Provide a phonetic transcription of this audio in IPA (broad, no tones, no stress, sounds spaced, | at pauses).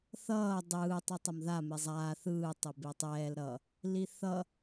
θ ʌː dˤ ɯː tˤ i tˤ ʌ m ð a m e zˤ aː θ ɯː tˤ e b e tˤ ɛː l ɾ ʌ | l i θ ʌ